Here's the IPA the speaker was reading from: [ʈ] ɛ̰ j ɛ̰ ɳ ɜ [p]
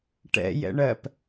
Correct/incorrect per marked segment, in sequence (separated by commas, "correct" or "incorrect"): correct, correct